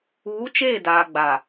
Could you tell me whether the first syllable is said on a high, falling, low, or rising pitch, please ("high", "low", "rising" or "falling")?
rising